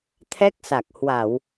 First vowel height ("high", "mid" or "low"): mid